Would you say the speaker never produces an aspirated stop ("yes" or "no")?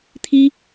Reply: no